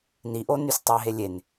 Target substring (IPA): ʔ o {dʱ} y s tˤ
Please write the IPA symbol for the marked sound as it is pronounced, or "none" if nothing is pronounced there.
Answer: n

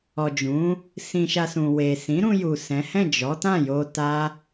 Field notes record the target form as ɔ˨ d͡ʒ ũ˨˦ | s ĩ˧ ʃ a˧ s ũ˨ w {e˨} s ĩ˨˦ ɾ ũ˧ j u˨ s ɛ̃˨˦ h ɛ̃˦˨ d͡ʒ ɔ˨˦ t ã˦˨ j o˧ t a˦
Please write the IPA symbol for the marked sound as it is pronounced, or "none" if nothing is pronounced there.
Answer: e˨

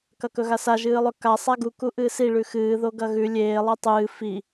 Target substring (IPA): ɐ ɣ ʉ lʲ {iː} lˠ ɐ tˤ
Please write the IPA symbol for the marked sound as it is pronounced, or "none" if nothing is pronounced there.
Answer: eː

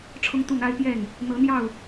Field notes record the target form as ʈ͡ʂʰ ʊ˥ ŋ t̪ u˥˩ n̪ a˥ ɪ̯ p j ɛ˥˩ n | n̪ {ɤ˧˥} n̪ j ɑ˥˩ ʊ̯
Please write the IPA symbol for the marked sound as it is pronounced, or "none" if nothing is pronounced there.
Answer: ɤ˧˥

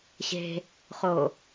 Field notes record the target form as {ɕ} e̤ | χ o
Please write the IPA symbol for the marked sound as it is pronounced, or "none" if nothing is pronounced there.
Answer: ɕ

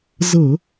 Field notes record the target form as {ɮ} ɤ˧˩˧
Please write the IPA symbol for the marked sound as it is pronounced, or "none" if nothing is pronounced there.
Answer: z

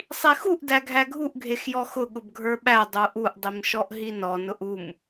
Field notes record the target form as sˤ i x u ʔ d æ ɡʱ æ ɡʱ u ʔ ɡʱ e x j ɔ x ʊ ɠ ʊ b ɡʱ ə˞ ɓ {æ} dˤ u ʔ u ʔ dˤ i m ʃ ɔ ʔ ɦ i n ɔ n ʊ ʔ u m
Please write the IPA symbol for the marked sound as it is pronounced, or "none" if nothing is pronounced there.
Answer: æ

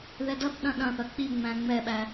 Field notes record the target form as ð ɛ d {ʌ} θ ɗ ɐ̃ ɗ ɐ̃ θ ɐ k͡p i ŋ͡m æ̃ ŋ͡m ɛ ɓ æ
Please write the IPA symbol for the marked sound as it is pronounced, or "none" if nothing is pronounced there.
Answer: ʌ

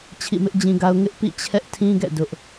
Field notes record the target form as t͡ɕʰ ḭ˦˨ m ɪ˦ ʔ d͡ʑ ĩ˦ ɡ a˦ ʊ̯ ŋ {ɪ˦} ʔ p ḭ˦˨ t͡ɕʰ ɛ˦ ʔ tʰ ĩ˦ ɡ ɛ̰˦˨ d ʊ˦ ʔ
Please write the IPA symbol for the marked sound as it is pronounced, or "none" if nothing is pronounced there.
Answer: ɪ˦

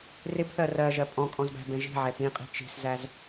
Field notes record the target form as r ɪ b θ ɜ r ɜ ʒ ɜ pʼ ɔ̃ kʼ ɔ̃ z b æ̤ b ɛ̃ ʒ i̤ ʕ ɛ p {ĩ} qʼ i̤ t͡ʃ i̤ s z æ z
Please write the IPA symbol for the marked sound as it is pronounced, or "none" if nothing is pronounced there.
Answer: ĩ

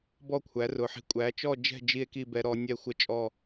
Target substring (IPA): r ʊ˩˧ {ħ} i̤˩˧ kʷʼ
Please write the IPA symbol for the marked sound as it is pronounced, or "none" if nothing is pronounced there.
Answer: ħ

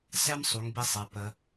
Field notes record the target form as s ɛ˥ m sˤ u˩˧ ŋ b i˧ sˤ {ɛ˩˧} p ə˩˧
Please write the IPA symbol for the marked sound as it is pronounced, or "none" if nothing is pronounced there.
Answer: ɛ˩˧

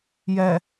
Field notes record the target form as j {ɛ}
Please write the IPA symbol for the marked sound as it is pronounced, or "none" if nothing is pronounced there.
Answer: ɛ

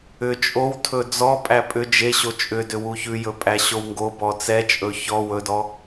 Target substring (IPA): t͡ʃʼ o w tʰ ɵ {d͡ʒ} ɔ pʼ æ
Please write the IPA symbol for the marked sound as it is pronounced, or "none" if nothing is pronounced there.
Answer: d͡z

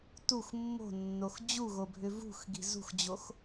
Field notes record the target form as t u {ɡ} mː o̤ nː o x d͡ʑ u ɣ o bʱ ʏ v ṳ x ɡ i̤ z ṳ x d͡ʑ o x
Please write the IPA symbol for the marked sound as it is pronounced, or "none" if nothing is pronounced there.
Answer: x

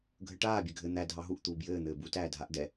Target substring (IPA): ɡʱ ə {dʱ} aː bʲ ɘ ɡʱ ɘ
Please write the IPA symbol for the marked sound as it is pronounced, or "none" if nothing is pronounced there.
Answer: ʈ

